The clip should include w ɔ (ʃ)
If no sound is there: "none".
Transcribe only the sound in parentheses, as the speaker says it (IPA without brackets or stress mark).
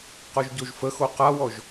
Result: ʒ